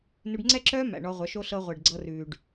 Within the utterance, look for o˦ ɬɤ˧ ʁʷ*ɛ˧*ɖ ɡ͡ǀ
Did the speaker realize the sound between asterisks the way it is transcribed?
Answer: no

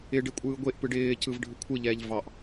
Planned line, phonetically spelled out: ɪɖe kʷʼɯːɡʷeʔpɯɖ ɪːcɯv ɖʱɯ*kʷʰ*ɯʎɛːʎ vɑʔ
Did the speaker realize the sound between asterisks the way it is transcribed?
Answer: yes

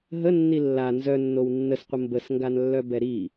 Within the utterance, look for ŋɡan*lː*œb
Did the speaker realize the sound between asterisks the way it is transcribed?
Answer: yes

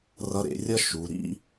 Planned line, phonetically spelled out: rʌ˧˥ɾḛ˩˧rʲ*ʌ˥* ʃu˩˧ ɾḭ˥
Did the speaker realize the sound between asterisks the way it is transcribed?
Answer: yes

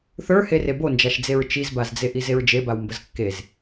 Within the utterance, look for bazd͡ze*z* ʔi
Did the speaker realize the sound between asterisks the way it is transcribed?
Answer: no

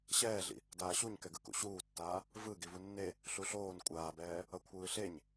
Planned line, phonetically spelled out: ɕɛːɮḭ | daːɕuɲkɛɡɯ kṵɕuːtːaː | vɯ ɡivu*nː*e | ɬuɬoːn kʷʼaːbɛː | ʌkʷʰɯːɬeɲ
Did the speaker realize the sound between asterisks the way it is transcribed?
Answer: yes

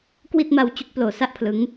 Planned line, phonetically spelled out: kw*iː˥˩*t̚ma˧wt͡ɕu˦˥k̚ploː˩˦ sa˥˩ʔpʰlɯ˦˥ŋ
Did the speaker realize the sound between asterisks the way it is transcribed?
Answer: no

